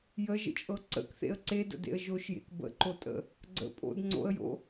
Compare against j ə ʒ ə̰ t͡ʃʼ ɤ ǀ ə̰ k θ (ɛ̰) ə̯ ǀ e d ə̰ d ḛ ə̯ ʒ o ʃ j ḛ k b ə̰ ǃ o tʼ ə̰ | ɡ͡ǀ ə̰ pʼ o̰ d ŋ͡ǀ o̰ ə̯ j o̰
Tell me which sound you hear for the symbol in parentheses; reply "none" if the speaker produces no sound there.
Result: ḛ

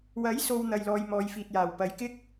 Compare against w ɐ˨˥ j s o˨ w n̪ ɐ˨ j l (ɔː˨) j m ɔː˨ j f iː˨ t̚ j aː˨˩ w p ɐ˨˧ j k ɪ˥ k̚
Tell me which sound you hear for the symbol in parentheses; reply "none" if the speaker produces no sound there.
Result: ɔː˨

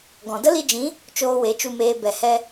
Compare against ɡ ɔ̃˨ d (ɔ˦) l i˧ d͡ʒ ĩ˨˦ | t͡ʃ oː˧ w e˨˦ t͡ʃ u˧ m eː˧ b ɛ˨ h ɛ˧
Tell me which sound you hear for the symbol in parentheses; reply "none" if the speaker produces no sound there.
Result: ə˦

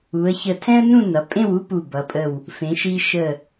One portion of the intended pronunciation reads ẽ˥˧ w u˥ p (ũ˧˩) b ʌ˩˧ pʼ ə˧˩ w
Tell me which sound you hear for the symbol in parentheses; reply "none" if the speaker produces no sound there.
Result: u˧˩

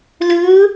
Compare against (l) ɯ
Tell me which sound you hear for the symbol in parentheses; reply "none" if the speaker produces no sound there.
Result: l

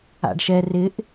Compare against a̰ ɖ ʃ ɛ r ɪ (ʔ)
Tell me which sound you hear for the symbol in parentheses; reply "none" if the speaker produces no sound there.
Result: ʔ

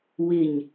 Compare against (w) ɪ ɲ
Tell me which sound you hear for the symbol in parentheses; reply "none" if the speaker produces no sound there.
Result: w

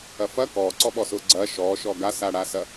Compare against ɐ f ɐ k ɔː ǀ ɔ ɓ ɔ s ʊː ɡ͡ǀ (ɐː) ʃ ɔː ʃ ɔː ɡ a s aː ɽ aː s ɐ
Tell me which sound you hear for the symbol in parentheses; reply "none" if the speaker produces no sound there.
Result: ɐː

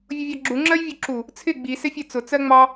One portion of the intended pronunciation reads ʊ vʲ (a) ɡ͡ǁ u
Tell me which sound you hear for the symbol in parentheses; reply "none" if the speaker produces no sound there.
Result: ɑ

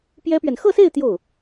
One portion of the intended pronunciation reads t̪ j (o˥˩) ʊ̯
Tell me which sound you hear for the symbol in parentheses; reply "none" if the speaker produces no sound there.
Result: o˥˩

